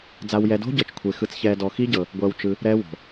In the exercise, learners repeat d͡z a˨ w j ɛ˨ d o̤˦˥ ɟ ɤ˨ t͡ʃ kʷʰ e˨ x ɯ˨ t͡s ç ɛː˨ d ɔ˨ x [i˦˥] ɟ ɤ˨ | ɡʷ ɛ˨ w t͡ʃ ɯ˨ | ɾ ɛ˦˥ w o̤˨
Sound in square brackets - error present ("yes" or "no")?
no